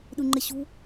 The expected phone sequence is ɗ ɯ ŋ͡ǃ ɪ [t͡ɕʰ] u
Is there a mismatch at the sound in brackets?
yes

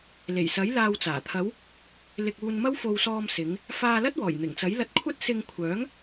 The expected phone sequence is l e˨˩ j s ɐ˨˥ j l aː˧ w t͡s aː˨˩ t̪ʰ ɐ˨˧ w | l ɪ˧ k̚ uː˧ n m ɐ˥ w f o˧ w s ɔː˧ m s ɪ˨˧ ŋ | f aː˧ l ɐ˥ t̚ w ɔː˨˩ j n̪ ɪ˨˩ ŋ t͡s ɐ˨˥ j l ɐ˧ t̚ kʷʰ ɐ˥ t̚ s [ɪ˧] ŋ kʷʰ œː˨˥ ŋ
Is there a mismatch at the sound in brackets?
no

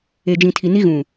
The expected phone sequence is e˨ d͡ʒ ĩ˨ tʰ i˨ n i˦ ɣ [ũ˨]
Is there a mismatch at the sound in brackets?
no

